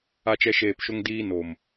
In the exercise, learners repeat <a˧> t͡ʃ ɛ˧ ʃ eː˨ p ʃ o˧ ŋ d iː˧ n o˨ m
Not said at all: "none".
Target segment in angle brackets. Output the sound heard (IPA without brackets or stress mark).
a˧